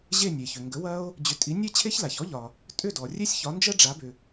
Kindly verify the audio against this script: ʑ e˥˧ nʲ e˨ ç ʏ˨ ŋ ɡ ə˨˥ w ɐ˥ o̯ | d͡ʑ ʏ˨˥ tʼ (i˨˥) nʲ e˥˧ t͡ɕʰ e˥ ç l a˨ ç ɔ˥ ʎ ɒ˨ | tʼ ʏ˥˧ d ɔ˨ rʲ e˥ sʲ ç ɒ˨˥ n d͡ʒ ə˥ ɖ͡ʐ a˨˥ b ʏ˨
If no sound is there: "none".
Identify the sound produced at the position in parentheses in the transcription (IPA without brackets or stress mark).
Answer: i˨˥